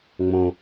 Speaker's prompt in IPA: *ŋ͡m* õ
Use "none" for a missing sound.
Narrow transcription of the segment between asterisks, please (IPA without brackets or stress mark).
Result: ŋ͡m